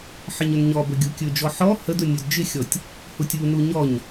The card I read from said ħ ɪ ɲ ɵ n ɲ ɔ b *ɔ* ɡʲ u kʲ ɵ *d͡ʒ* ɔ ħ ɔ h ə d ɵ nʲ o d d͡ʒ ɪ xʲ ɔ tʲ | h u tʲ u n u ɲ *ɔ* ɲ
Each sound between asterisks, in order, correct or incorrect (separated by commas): incorrect, correct, correct